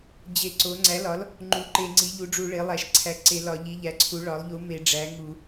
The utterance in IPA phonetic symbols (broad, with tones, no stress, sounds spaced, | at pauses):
d͡ʑ e˧˩˧ ǀ o˩˥ ŋ͡ǀ æ˩˥ l ɒ˩˥ l | ŋ͡ǃ u˩˥ ǃ e˧˩˧ ŋ͡ǀ i˩˥ ʎ u˩˥ ɖ͡ʐ u˧˩˧ ɭ e˩˥ lˠ æ˧˩˧ ʃ ǀʰ æ˩˥ ǀ e˧˩˧ l ɒ˧˩˧ ʎ i˩˥ ʎ æ˩˥ ǀʰ u˩˥ ɭ ɒ˩˥ lˠ ʎ u˩˥ m e˧˩˧ ɖ͡ʐ æ˩˥ ŋ u˧˩˧